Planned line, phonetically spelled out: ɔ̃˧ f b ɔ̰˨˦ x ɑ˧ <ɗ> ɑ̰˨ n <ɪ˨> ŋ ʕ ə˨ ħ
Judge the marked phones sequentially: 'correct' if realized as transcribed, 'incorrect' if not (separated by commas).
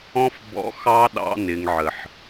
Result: correct, correct